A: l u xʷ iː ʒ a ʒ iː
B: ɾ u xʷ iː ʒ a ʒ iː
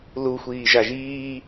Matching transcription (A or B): A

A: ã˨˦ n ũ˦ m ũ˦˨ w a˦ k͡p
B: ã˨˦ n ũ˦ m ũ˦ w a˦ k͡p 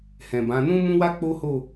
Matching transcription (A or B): B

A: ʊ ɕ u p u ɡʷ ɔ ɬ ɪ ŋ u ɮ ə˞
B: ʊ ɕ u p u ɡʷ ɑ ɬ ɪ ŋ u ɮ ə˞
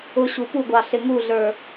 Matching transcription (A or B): B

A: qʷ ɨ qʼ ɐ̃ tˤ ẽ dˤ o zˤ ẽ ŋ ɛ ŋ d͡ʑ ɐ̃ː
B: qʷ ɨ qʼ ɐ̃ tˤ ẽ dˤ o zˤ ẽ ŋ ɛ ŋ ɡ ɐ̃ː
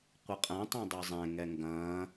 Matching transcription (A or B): B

